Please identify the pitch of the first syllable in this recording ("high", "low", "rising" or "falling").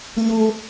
high